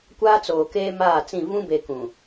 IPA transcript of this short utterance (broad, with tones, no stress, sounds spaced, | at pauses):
kʷ aː˦ t͡s oː˨ k eː˦ m aː˦˨ t͡s ĩ˦˨ v ũ˦ b e˨ k ũ˨